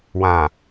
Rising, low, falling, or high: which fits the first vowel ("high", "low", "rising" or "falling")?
low